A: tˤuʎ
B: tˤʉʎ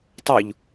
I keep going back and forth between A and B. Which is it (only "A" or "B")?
A